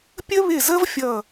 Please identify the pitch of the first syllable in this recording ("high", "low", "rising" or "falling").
high